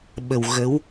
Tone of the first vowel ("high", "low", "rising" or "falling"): low